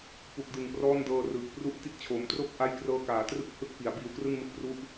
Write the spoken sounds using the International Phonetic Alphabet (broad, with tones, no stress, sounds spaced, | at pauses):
p u˨˩ k̚ d ɯ˨˩ ŋ p r ɔː˥˩ n d ɤː˧ r ɯː˨˩ k̚ p r u˥˩ ʔ t i˥˩ t̚ t͡ɕʰ oː˩˦ m t r o˥˩ k̚ ʔ a˦˥ j k r ɤː˧ k aː˩˦ t r ɯ˥˩ k̚ h ɯ˦˥ k̚ p i˩˦ a̯ b iː˧ w k r ɯ˥˩ ŋ m ɯ˦˥ k̚ p r u˦˥ ʔ